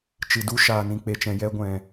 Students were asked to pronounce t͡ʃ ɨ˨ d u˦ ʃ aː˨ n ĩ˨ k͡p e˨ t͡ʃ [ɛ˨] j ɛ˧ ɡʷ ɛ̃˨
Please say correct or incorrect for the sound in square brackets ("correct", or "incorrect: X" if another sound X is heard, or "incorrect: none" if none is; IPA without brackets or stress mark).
incorrect: ɛ̃˨